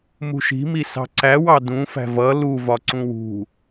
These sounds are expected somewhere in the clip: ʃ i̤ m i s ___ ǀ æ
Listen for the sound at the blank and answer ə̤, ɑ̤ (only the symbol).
ɑ̤